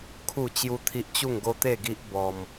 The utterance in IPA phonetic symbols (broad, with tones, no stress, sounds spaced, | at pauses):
kʰ u˥˧ t͡ɕ j u˦ t̪ʰ i˦ ʔ t͡ɕ u˥˧ ŋ ɡ o˦ t̪ e˥˧ ɡ i˦ ʔ b ɔ˧ m